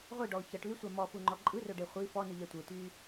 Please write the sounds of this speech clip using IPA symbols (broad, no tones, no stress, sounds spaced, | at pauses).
ʁʷ i ɖ ɔ ʊ̯ ç ʌ ʈ l y sʷ a m ɔ f u ŋ͡ǃ ɔ ǃʼ ɯ r ɵ ɖ e χʷ i f ɔ n ɯ ʎ ɛ tʷ ɯ t y